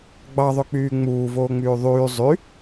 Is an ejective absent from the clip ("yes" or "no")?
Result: yes